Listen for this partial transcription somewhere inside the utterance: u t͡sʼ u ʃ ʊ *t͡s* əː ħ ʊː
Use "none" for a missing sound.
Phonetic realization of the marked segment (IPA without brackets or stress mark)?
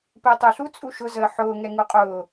z